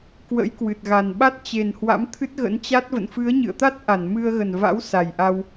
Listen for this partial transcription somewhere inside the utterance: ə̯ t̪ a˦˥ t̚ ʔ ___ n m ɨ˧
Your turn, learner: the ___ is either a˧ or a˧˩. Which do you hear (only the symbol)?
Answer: a˧˩